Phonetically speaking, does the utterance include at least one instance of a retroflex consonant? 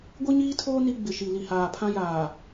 no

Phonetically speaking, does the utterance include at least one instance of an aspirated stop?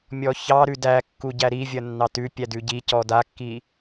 no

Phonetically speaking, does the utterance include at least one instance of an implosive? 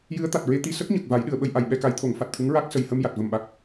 yes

